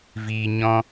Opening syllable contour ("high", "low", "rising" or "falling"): low